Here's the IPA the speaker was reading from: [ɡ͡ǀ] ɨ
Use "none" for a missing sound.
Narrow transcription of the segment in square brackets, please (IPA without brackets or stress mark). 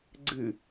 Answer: ɡ͡ǀ